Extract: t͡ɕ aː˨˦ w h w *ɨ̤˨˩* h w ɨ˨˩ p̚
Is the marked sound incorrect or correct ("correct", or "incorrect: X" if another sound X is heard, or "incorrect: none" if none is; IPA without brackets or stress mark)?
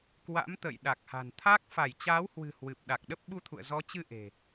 correct